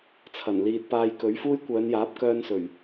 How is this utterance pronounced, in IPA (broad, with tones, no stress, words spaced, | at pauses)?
t͡sʰɐ˨˩nliː˨t̚ paː˧jkɵ˨˥ɥfuː˥j kʷœː˨˧njaː˨˥p̚kœː˧nsɵ˨˩ɥ